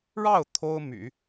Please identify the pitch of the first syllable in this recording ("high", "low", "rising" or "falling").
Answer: falling